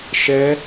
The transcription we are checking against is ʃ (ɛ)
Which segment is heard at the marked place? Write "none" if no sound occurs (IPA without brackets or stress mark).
ɛ